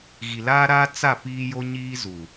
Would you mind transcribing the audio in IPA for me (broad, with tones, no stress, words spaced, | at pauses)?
ɣi˨laː˦ɾaː˦ t͡sa˦˨ piː˦jo˦ɲiː˦zu˨